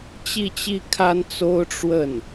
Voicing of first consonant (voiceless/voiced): voiceless